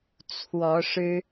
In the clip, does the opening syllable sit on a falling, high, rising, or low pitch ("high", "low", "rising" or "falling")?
rising